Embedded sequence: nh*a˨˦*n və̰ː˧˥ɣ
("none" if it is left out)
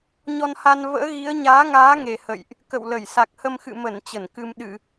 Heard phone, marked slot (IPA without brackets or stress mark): a˧